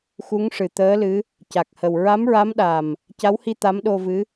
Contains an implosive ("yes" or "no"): yes